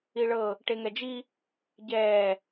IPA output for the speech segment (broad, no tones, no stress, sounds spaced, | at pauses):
i ɭ ɤ | ʈ e ŋ ɛ d͡ʒ i | ɟ ɛː